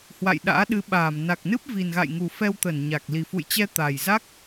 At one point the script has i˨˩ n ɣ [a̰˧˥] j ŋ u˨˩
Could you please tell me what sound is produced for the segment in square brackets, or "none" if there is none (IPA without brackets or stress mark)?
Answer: a̰˧˨